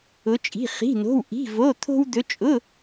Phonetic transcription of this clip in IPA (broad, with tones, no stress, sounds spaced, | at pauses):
ʊ˧˥ t͡ʃʼ i̤˧˥˧ χ i̤˧˥˧ n o̤˧˥˧ w ʔ i̤˧˥˧ v o˧˥˧ t̪ʰ o̤˥ w d̪ ɵ˧˥ t͡ʃʼ ʊ˧˥˧